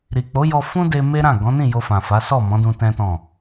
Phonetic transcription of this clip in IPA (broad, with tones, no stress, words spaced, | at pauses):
ɾi˨k͡po˨˦jɔ˧ fũ˦de˧ me˦ɾã˦˨ ɡɔ̃˨˦nĩ˦˨ jo˧fã˨fa˨˦ sɔ˦˨mɔ̃˨˦dũ˧ tɛ̃˦tɔ̃˦˨